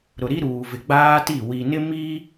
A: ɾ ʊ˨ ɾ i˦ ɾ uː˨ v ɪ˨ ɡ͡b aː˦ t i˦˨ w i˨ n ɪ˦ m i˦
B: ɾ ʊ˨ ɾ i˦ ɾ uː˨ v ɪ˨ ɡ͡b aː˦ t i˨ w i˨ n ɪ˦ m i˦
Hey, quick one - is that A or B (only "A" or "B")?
A